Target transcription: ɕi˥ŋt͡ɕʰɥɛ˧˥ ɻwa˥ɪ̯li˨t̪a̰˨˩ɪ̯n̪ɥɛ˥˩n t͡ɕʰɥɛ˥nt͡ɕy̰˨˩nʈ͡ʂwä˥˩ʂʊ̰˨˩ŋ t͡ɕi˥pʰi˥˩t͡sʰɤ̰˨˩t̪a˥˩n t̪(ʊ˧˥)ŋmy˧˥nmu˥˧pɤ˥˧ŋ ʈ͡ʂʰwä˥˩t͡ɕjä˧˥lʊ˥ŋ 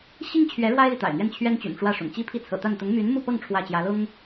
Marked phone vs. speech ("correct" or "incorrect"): correct